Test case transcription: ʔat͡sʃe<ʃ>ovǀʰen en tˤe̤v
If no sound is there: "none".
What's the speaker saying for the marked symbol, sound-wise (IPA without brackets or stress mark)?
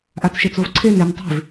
t͡s